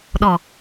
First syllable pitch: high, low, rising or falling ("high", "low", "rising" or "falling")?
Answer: low